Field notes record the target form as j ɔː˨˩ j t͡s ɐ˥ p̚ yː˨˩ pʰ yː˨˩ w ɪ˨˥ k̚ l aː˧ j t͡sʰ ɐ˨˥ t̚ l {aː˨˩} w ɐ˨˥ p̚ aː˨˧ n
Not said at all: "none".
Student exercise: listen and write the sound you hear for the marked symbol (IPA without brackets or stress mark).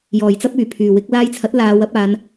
aː˨˧